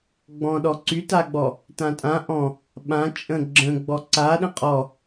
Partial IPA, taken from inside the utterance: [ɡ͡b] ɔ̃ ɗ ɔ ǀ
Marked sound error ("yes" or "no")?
no